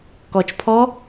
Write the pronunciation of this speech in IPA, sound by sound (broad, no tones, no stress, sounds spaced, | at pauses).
k ɔ t͡ʃ pʰ ɔ